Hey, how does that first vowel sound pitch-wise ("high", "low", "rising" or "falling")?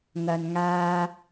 low